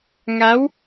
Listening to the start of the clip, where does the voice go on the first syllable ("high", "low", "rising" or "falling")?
rising